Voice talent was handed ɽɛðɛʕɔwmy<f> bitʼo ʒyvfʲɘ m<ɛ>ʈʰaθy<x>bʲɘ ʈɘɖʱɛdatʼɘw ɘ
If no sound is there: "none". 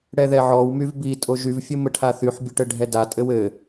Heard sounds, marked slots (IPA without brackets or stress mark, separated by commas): v, ɘ, ħ